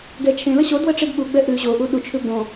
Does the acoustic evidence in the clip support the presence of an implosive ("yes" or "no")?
yes